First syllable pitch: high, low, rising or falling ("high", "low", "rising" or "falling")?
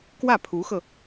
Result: falling